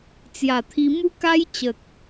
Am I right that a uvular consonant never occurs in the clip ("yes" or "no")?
yes